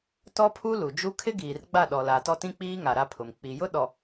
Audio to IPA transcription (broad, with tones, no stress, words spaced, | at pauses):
tɔ˦pʰu˦ lu˨d͡ʒu˦ kʰɪ˦ɡiː˨rɡ͡ba˦˨ ɗɔ˨la˨ tɔ˦tĩ˦k͡piː˦ŋa˨ ɾa˦pʰʊ˨m k͡pi˨jʊ˦ ɗɔ˨